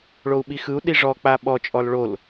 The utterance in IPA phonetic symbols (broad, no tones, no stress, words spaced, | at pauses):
ɭou̯ɓixɯu̯ɗi ʐɔk͡pa ɓɔt͡ʃʼɔl ɭol